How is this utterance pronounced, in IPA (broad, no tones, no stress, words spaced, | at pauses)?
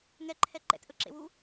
ŋɛǃʰɛ ǃɛ̰tʔɵǁḛwu